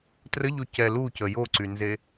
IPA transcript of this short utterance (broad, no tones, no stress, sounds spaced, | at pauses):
t r ə ʎ o c ɛ l u c ə j o ǀ y n z e